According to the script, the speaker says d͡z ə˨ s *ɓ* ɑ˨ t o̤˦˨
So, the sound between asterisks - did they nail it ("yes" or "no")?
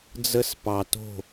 no